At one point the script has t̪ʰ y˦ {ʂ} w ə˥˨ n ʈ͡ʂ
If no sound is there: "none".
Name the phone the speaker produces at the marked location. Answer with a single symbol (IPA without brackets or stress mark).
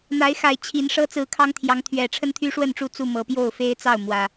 ʂ